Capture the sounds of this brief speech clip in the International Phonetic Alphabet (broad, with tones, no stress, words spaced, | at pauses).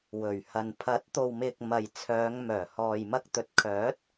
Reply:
wɵ˨˩ɥhɐ˨n pʰɐ˨˥t̚t̪o˨wmɪ˨k̚ mɐ˨jt͡sʰœː˨˧ŋmœː˨˩ hɔː˨jmɐ˧k̚ t̪ɵ˨˥t̚kʰœː˨˥t̚